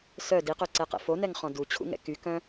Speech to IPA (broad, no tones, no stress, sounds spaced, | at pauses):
s œ d i q ø ǀ ɛ q ɛ̰ f o n ɛ ŋ χ ɔ̃ d u t͡ɕʰ ṵ ŋ ɛ̰ k y k œ̃